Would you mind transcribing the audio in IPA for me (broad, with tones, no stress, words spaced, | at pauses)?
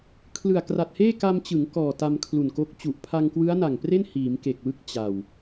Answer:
kʰlɯ˨˩a̯kra˨˩t̚heː˥˩ ka˧mt͡ɕɯ˩˦ŋ kɔː˨˩ta˧m kʰlu˨˩nko˦˥k̚ t͡ɕu˨˩ʔ pʰa˧ŋkwɯ˦˥a̯na˨˩ŋpre˥˩n hiː˩˦mke˨˩k̚wɯ˦˥k̚ t͡ɕa˨˩w